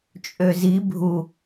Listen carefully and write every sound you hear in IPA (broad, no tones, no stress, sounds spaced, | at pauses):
t͡ʃʼ ø z i bʱ u